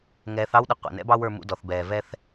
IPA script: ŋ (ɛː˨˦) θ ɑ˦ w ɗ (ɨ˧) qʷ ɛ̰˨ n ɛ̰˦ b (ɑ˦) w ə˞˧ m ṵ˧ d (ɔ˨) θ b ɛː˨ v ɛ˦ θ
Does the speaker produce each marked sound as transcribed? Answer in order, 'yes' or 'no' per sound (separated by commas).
yes, no, yes, yes